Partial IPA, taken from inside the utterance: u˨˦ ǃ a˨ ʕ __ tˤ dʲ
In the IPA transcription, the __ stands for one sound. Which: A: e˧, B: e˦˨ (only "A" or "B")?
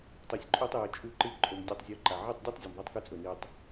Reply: B